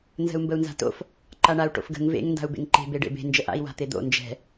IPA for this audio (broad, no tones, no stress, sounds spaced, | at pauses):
n z ə̤ u̯ m b ə u̯ n z a̤ t o̰ f | ǃ a ɳ a u̯ ʈ o̰ f ɡ ə̤ ŋ v ḛ ŋ n d a̤ u̯ b ḛ ŋ ǃ e̤ b e ɖ ḛ b e̤ n d͡ʒ ə ʔ a̰ i̯ w a̤ t̪ e d̪ o̰ n d͡ʒ ɛ̤